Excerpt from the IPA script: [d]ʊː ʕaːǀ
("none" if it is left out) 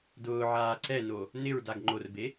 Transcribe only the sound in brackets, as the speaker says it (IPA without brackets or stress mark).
d